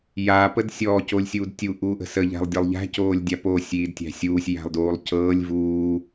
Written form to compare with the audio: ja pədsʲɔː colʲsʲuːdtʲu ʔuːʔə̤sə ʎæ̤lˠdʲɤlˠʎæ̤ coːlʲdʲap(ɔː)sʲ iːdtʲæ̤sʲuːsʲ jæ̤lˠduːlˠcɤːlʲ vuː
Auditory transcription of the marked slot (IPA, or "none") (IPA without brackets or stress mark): oː